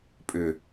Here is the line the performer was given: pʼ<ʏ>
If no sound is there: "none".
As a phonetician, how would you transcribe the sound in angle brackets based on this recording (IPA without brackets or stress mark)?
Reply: ʏ